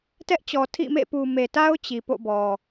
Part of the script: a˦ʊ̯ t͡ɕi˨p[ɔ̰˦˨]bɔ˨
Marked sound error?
yes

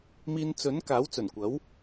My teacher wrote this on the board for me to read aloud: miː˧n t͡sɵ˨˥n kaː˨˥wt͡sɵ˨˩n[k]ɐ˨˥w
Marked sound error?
yes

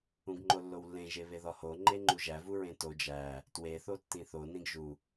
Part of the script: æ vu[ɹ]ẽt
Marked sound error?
no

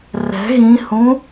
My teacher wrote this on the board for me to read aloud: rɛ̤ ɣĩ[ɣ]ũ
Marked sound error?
yes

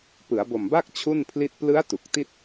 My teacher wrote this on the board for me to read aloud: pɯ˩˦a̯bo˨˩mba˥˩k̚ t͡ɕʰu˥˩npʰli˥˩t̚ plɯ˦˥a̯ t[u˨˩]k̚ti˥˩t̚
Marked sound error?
no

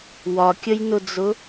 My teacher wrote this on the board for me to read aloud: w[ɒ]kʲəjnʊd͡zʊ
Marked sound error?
no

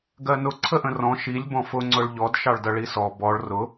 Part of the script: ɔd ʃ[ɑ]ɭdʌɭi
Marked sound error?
no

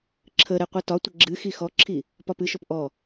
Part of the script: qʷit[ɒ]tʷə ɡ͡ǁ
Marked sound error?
no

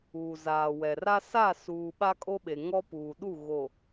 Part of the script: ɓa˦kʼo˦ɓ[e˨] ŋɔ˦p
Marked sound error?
no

